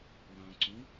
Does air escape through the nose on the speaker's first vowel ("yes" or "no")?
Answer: yes